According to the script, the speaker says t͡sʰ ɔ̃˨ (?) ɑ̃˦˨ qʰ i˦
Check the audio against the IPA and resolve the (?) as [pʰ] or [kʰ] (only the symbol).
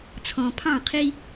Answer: pʰ